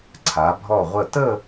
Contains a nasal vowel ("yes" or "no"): no